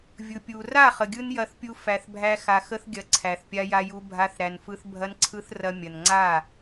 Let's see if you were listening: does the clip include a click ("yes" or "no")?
yes